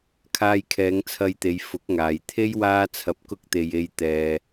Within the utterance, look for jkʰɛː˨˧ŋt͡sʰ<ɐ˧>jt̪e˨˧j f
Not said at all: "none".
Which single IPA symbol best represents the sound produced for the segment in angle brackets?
ɐ˧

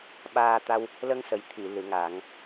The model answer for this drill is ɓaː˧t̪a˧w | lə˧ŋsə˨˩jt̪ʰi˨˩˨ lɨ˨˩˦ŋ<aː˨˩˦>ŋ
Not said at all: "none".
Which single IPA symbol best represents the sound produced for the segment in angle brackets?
aː˨˩˦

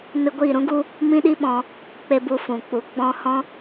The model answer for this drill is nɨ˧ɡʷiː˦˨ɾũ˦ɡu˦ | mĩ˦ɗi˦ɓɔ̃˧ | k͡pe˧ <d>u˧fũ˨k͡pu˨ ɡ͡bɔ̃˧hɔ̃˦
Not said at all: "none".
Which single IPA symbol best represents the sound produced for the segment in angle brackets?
b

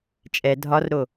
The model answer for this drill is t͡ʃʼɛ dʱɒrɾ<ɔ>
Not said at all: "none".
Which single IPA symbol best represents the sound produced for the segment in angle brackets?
o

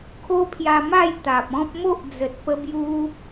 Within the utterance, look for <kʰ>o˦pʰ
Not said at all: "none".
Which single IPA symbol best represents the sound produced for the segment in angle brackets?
kʰ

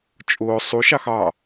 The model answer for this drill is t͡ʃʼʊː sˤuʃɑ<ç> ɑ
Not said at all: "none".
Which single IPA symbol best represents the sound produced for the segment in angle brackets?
x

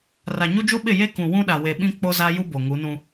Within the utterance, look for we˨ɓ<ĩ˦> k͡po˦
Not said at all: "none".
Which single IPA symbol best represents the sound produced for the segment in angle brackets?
ĩ˦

